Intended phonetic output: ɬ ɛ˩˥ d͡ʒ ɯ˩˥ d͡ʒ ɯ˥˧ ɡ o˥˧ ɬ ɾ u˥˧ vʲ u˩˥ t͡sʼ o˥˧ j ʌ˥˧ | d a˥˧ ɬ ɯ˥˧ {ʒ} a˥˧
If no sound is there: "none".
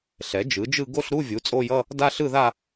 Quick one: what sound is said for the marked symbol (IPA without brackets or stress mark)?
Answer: ð